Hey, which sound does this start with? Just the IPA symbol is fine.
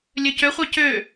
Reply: lʲ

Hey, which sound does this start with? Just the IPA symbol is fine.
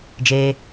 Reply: d͡ʒ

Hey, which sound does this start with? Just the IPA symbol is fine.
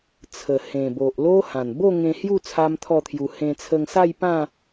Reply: t͡sʰ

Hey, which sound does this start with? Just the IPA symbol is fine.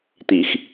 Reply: t̪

